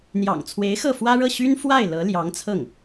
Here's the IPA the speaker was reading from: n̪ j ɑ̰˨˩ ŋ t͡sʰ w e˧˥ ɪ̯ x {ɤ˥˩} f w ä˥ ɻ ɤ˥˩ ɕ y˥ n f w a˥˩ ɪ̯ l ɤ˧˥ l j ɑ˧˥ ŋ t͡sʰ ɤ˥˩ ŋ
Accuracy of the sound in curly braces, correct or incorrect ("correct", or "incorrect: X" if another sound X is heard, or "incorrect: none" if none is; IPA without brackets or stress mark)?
correct